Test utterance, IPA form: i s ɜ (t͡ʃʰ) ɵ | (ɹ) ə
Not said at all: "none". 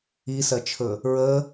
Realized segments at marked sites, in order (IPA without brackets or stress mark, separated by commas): t͡ʃʰ, ɹ